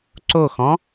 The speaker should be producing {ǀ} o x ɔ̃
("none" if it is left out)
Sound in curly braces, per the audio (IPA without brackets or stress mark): ǀ